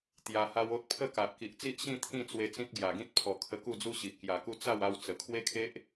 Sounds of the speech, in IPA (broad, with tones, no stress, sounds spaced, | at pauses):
t̪ j a˧ h a˦ w o˦ t̚ pʰ ə˥˧ k a˨ ʔ k i˨ ʔ t͡s i˦ ʔ ɕ ĩ˥˧ t̪ʰ ĩ˥˧ t͡s w e˧ t͡s ĩ˦ t̚ ɡ j a˨˩ ɡ ĩ˦ t̚ pʰ ɔ˨˩ kʰ ə˧ k u˥˧ d͡z u˦ ɕ i˨ ʔ k j a˨˩ k u˦ t͡s a˥˧ w a˧ w t͡s ə˨˩ kʰ w e˦ kʰ e˦ ʔ